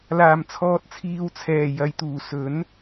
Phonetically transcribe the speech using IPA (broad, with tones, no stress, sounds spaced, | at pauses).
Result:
l aː˨˩ m t͡sʰ ɔː˨ t̚ t͡sʰ iː˨ w t͡sʰ ɛː˨˩ j ɐ˨ j t̪ uː˨˩ s ɵ˨˥ n